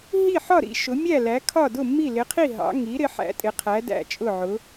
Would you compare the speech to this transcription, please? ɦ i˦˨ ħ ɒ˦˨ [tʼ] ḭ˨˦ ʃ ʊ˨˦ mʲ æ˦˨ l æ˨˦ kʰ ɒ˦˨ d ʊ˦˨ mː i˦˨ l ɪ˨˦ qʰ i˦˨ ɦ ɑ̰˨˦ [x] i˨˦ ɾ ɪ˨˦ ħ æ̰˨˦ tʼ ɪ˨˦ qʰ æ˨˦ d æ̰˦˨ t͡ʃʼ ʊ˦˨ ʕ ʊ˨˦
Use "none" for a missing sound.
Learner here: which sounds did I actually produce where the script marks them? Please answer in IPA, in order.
ɾ, ŋ

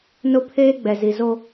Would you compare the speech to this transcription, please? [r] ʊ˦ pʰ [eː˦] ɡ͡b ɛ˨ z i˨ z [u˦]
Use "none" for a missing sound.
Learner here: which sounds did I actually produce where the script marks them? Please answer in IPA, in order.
n, eː˦, o˦

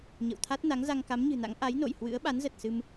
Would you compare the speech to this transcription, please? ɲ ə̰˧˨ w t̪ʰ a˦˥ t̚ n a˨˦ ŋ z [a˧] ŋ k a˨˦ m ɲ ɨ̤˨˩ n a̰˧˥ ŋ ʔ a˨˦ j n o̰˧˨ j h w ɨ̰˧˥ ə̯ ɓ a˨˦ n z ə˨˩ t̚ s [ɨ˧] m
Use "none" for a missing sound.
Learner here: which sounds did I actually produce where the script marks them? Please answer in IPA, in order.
a˧, ɨ˧

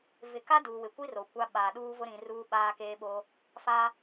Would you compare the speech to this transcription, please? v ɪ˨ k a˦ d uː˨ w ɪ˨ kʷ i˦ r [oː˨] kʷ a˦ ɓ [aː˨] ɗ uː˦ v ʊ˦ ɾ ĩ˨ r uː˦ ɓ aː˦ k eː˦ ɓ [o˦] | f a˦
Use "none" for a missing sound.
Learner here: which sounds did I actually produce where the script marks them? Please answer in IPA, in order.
o˨, aː˨, o˦

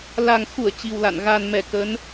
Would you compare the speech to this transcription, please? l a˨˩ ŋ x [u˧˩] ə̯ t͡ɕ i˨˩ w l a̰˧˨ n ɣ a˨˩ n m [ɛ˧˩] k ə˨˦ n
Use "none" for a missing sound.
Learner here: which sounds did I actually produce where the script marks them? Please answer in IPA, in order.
u˧˩, ɛ˧˩

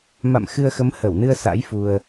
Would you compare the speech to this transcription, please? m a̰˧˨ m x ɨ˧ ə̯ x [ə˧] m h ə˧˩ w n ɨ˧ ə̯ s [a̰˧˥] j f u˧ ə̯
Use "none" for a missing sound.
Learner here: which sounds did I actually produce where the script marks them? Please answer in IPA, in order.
ə˨˦, a̰˧˥

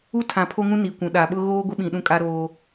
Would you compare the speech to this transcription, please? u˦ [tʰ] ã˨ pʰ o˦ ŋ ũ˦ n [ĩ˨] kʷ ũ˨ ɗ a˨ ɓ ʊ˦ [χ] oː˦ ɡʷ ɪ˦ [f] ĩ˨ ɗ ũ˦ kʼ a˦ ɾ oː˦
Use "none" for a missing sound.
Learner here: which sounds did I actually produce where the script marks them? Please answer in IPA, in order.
tʰ, i˨, ɣ, ɓ

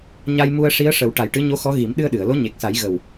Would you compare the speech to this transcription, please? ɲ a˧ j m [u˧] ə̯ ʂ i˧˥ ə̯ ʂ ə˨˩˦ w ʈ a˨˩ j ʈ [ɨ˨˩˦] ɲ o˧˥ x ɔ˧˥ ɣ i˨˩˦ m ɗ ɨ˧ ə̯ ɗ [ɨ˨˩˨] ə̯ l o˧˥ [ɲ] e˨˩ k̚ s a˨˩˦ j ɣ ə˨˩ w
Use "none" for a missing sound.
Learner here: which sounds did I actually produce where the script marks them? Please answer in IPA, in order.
u˧, ɨ˧˥, ɨ˨˩˨, ɲ

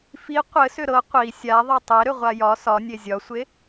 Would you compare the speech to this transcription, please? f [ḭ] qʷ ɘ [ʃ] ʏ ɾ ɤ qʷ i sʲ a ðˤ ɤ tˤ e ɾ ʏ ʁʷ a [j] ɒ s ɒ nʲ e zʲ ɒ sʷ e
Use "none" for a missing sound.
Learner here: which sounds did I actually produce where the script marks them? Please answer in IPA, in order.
i, s, j

